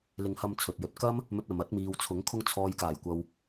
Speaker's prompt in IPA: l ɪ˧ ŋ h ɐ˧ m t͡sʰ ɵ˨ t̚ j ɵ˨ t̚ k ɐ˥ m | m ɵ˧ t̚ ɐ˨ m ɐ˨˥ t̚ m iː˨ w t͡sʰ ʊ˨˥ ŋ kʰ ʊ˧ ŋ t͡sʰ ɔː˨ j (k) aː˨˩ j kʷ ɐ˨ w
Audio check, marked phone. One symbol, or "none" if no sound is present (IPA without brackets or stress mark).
k